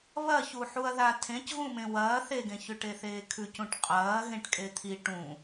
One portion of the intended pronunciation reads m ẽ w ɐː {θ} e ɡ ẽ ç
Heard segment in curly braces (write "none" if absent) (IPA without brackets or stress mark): θ